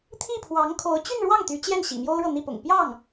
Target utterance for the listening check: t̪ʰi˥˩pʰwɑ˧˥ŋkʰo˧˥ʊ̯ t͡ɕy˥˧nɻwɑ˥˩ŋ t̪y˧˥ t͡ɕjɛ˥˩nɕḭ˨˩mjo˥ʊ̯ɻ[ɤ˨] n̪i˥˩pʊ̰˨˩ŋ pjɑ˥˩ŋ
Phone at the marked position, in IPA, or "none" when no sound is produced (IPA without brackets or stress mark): ɤ˨